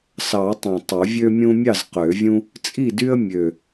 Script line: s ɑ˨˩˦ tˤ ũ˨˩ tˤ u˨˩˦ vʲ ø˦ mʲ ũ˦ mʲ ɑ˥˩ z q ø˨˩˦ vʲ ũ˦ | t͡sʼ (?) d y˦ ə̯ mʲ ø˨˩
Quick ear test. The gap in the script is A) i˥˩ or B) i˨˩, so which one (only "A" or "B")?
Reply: A